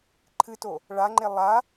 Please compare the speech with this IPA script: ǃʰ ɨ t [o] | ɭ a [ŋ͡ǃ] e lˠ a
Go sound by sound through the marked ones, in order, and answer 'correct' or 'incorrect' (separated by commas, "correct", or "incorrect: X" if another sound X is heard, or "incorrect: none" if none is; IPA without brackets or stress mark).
correct, correct